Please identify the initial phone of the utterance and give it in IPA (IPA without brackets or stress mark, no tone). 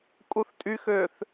kʼ